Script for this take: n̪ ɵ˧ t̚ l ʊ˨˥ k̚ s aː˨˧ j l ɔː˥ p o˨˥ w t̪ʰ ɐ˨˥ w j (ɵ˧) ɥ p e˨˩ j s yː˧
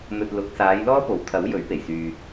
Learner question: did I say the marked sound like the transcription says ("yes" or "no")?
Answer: no